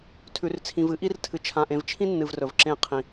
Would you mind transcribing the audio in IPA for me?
tʰ ʉ˨ r t͡sʰ ĩ˨ v ɨ˦ ʔ i˦ r tʰ ɨ˨ t͡ʃʰ ã˨ ʔ ẽ˨ v t͡ʃʰ ĩ˦ nː ɨ˨ v r ɵ˨ v ǁ ẽ˦˨ qʰ ĩ˨

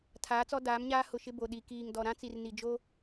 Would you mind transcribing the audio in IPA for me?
tʰ aː˨˦ t͡s ɔ˦ d aː˨˦ m ɲ aː˦ h ʊ˨ ʃ ɪ˦ b o˨ ɗ i˨ k iː˨ ŋ d ɔ˨ ɾ ã˦ t͡s i˨ r n i˨ d͡ʒ o˦

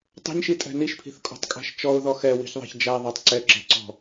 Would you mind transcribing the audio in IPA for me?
tˤ e̤ ɲ ʃ i tʼ ɛ̤ n i ʃ pʰ i̤ θ kʼ ɔ̤ tˤ kʼ æ̤ ʃ t͡ʃ ɔ ʊ̯ ð ɔ x ɛ w i̤ ç ðˤ ɛ̤ ç d͡ʒ æ ðˤ æ tˤ ǀ ɛ ǁ e̤ ǀ ɔ̤

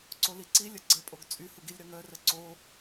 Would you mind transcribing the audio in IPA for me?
ǀ o l i ǀ i lʲ ə ɡ͡ǀ ə pʼ o ɡ t͡sʼ y h u ɡ i lʲ ɾ œ ŋ œ r ə ǀ o

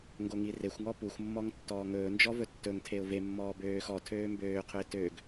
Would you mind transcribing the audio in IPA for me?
ŋ ɡ o ŋ i r e xʷ ŋ ɔ p u xʷ mː ɔ ŋ tː ɔː ŋ ɵː n d͡ʒ ɔ v ɵ tː ɵ ŋ tʰ e ʊ̯ v e mː ɔː b øː x ɔ tʰ øː m b øː qʰ ɵ ɪ̯ t ø ɡ

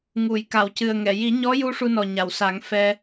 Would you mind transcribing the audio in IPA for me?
ŋ u˨˩˨ j k a˨˩˨ w c ɨ˨˩ ə̯ ŋ ɛ˨˩˨ j i˨˩˦ ɲ ɔ˧˥ j u˧ ʂ u˧ n ɔ˨˩ ɲ a˨˩˨ w s a˨˩˦ ŋ f ɛ˧

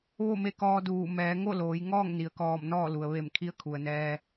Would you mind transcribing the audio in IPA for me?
ʋ o˥˨ m e˧˥ k ɔː˧ d uː˧˩ m ɛː˩˧ ŋ o˥˨ l oː˩˧ j ŋ ɔː˥˨ ŋ n i˩ ə̯ k ɔː˧˩ m n ɔː˥˨ l u˩ ə̯ ʋ e˧˩ m kʰ i˧˥ ə̯ kʰ u˩ ə̯ n ɛː˧

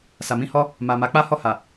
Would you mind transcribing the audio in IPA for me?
s a˨ m ĩ˧ h ɔ˦ | m a˨ m a˨˦ k͡p a˦ h ɔ˦˨ h a˨

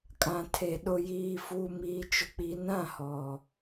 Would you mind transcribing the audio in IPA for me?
kʼ ã˨ tʰ e˨ ɗ ʊ˨ j iː˨ f uː˨ m iː˨ t͡ʃ ʊ˨ k͡p i˨ n ã˦˨ h ɔ˨

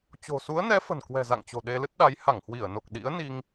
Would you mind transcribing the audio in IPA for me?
t͡ɕ o̤˨˩ s u˨˦ ə̯ n ɛ˨˦ f ə̤˨˩ n k w ɛ̤˨˩ z a̰˧˨ ŋ t͡ɕ o̤˨˩ ɗ e˧ l ɨ˦˥ t̚ ɗ a˨˦ j h a˧˩ ŋ h w i˧˩ ə̯ n o˨˩ k̚ ɗ ḭ˧˥ ə̯ n i˧ ŋ

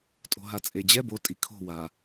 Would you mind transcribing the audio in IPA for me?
tʼ o̤ ɦ a t͡sʼ e d͡ʑ ɛ b o tʼ i kʰ o̤ w a

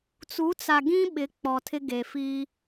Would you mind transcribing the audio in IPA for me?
t͡s u˨˦ t͡s a˨ ɡ ĩ˦ ɓ ɪ˨˦ k͡p ɔ˨ tʰ ɪ˦ ɡ e˨ f i˦

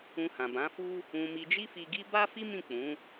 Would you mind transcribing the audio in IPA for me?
ũ˧ h ã˨ b ã˨˦ f u˦ | ũ˧ m i˧ d͡ʒ i˦ f i˧ ɡ i˦ b a˦ f i˦ m ĩ˦˨ k͡p ũ˨˦

